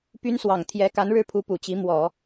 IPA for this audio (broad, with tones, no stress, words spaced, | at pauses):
py˥nswɑ˨˩ŋ t̪ʰjɛ˧˥ ka˧˥nɻɻ̩˥˩pʰu˧˥ pu˨˩t͡ɕi˧˥ mwɔ˨˩˦